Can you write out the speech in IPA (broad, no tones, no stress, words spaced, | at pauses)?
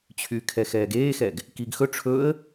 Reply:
t͡ɕʰykʰɛ xɛːɡeːxɛɡ | kiɡ xɵ ʈ͡ʂʰɵə̯